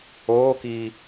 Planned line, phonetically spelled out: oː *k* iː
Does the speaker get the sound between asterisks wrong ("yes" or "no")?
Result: no